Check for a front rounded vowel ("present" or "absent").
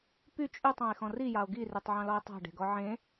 present